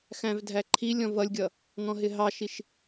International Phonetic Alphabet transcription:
xæ̃vdʱæǃʰilʲɔ̃ vʌlʲɡʲʌ | ŋɔ̃ɦɪɦɑʃiʃ

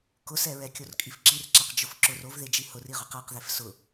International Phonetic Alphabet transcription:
kʊsɛɹɛ kʲorkʼifǁirǁaq d͡ʒʊfǁʊr ovðed͡ʒi hʊriʁʊq aqðef sʊ

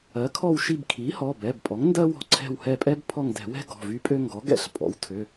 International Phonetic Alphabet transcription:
ɜ˩˥kʰɔ˦˨w ʃi˦˨bkʰi˩˥hɔ˩˧˩bɛ˩˧˩b pʼɔ˩˥ŋndɜ˥wɔ̤˦˨ǀʰɛ̤˦˨w hɛ˦˨pʼɛ˥b pʰɔ˦˨ŋdɛ̤˧˩˧wɛ̤˥ ɡɔ̤˩˧˩vy˥pʼø˥ ŋɡɔ˩˥ɡɛ̰˦˨ɬ pʼɔ̰˩˥wtʰø˩˧˩

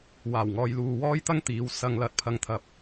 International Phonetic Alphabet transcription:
waː˨˩wŋɔː˨jluː˨ wɔː˥jt̪ɐ˥ŋt̪iː˨˥w sɐ˨ŋlɐ˨t̚pʰɐ˨˧ŋt̪ʰɐ˨p̚

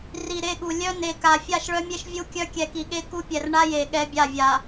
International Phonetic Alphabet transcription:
ri˨ɾe˦˨ɠu˨ lʲœ˦ ne˨ka˨ fʲa˦˨ʃɭœ˦mʲe˦ʃ vʲu˦kʲœ˦ kʲɛ˨ki˨ɠe˦ ku˦pʲɛ˨r ɳa˦je˨ ɠɛ˦bʲa˦˨vʲa˨

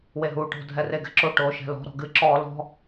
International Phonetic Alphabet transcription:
weɦuːʈo̤ dʱɛreɡɛ̤ǁo ʈoːʃɛ̤lɔ̤ ɾɔ̤ɡɨ ǁɔːlɔ̤

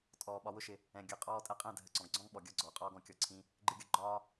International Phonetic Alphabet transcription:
tʼɔː˨ ɓɒ˨wʊ˧ʃɪ˨ | ɛ̃˨ ɡʲʌ˨qʼɔː˧ tʼɛ˧qʼɛ̃˦˨ dʱə˨ǀɔ̃˨ɡɡ͡ǀɔ̃˦ŋ ɓɔ˨ɡʲɒ˦ ɡ͡ǀɔː˨qʼɔː˦ɡɔ̃˨kʲɔ˧ ǀʰĩ˦ | ɡ͡ǃɪ˧ɡʲʌ˧ ɡ͡ǃɒː˦

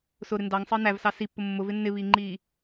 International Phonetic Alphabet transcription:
sʊɾɪ ndɑŋsˤəː nævsɑ sipːʊ mːʊvɪ nːɪβiːŋ͡ǃiː

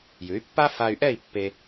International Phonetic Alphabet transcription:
jʉ˩˥y̯pːa˥ fa˧y̯ʔɛ˥˩i̯ pːe˧

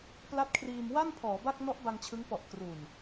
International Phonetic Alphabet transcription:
pla˦˥t̚kʰriː˧m wa˥˩n pʰɔː˩˦ ba˥˩k̚ nɔ˦˥ʔba˧ŋ t͡ɕʰɯ˦˥ŋ pɔ˨˩ʔ kru˨˩n

